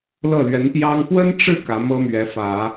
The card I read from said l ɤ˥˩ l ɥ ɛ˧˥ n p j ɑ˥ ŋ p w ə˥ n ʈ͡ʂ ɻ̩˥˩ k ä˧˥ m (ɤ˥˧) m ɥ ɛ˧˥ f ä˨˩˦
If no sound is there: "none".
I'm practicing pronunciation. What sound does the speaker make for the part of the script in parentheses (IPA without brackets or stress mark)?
ɤ˥